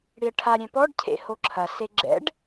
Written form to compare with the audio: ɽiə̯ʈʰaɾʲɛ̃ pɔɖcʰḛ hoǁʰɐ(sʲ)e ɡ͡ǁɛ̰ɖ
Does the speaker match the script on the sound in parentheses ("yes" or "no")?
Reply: no